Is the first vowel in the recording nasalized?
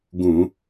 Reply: yes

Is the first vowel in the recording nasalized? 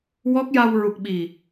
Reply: no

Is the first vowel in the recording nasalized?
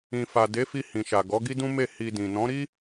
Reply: yes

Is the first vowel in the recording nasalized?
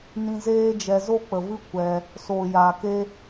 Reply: yes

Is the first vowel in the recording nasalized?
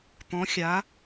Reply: yes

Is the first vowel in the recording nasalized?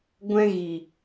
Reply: yes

